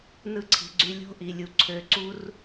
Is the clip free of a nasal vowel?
yes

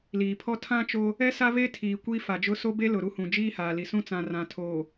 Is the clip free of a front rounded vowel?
yes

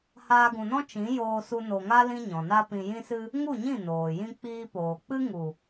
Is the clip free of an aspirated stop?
yes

